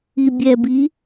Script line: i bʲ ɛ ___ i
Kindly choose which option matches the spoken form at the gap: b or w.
b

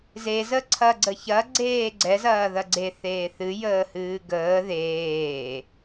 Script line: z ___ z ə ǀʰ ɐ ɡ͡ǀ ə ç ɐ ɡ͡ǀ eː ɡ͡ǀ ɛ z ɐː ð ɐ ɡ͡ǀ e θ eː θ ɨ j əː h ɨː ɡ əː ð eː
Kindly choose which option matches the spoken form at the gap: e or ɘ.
e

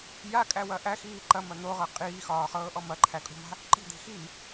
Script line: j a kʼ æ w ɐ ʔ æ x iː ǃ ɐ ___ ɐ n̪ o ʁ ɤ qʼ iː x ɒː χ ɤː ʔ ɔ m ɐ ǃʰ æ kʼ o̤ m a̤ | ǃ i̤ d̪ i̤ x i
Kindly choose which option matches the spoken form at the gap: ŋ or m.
m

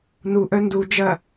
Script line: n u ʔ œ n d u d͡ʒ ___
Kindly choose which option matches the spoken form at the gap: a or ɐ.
ɐ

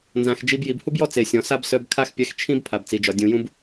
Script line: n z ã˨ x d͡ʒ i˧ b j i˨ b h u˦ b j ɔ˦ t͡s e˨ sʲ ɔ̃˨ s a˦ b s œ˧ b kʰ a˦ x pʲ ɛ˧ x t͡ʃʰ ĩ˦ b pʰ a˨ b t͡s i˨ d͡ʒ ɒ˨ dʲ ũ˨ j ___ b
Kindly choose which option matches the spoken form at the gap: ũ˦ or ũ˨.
ũ˦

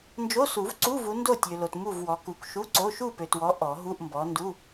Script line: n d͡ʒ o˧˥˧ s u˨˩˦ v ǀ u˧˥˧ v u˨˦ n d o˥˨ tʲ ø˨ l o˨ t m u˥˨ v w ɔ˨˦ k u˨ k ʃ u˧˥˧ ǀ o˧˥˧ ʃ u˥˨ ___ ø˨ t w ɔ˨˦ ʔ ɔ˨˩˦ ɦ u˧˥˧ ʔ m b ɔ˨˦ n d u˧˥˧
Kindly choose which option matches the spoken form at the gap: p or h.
p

